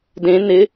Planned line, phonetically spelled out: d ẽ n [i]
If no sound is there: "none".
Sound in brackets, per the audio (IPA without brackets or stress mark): ɪ